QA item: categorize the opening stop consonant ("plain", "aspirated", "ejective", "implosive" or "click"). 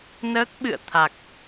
plain